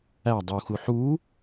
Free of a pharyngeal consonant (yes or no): no